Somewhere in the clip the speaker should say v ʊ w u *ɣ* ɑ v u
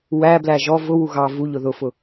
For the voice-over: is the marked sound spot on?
yes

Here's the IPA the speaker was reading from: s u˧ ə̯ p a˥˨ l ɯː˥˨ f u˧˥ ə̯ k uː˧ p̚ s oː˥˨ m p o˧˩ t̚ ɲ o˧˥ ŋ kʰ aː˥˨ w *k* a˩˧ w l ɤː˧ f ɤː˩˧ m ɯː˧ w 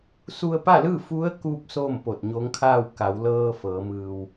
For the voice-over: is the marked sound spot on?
yes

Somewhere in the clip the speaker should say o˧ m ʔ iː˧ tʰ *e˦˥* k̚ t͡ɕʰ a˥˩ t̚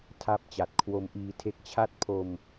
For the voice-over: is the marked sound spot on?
yes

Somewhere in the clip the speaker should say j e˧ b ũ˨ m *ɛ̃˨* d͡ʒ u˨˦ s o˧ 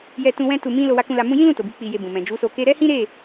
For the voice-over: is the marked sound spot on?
yes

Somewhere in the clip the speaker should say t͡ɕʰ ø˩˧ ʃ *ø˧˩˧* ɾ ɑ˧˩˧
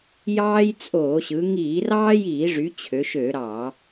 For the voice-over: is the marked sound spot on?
yes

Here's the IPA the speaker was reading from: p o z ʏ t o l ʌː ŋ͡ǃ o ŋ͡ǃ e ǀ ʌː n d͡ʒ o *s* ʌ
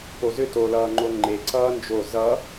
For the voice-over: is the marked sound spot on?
no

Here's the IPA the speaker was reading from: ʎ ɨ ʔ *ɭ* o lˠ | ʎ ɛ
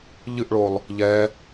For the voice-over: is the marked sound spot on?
yes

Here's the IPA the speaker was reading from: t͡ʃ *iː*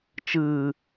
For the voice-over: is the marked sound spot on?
no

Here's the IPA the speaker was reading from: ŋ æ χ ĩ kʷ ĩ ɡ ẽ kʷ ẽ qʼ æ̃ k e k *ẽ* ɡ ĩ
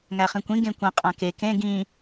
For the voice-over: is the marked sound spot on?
yes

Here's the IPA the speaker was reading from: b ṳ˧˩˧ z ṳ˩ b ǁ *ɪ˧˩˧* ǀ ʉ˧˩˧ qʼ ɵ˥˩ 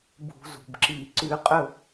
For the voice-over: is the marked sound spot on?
no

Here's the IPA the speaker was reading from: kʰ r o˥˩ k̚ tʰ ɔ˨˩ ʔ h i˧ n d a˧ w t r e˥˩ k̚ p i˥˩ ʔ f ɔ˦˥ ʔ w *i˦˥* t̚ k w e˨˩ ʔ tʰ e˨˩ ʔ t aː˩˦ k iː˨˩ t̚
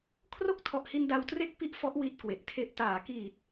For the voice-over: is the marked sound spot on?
yes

